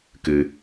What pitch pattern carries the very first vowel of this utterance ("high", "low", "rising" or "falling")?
low